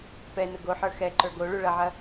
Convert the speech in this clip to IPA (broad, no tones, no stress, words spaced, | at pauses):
pɛ nʊɡoħə˞ xɛǃə˞ ɡoɭu ɭɐʕɐ